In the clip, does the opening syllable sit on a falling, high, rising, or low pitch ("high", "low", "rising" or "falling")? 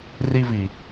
high